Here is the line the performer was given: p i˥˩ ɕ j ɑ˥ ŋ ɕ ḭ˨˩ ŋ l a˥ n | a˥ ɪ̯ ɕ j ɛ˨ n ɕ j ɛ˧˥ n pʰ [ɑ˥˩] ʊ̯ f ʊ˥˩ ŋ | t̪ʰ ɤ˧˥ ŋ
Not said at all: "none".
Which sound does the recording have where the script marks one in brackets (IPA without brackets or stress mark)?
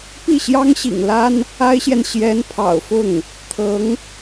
ɑ̰˨˩